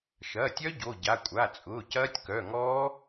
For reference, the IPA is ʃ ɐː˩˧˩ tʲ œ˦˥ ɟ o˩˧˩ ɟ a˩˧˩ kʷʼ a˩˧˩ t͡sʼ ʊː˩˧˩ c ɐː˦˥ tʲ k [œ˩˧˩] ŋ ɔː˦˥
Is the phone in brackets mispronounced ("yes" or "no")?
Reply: no